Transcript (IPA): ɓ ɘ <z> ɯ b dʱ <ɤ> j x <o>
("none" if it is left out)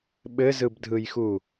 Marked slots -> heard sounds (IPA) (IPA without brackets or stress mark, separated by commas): z, ɯ, u